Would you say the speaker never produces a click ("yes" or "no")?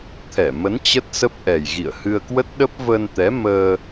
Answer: yes